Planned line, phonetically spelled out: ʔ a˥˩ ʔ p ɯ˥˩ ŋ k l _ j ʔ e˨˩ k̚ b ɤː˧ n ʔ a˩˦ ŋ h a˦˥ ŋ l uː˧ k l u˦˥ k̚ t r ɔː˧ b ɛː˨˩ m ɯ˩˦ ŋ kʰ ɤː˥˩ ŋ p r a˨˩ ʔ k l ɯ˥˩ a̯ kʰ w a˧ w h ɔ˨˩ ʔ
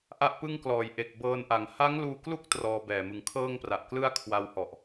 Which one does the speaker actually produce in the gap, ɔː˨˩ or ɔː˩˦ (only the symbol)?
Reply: ɔː˩˦